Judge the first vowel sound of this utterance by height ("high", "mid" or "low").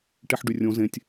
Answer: mid